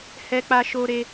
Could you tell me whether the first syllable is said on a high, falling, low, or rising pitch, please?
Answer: high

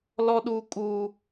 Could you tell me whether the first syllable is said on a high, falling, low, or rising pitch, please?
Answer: high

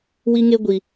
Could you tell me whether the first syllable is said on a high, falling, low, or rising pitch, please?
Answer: high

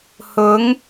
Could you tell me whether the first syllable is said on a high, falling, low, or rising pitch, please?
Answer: rising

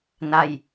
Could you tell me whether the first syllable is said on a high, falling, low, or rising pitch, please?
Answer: falling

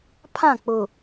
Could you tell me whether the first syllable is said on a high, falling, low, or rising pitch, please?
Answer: falling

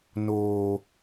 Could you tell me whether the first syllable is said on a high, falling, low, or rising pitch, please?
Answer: high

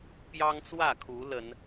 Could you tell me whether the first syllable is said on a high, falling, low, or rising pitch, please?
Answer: high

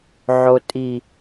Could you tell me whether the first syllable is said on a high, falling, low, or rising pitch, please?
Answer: low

